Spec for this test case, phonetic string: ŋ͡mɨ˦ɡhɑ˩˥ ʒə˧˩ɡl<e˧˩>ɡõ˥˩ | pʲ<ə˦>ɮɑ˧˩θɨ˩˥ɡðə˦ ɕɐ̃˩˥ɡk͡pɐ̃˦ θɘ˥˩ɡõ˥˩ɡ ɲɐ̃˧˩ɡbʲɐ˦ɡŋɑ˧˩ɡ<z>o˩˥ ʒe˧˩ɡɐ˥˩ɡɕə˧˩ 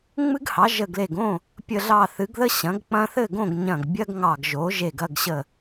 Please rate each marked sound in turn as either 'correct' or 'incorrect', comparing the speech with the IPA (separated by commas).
correct, incorrect, incorrect